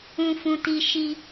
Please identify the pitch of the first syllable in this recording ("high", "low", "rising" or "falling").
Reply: high